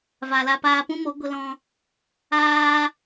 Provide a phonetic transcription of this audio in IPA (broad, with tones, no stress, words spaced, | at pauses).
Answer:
va˨la˧paː˧pũ˦ mo˨˦ɡʷə˧lɔ̃˧ | aː˦